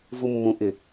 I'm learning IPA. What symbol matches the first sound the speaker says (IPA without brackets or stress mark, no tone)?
v